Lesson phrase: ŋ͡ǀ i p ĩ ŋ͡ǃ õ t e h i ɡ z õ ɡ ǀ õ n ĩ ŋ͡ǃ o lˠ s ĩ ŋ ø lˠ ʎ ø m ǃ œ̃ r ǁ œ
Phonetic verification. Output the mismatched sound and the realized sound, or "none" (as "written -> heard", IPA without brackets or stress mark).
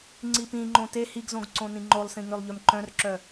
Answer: none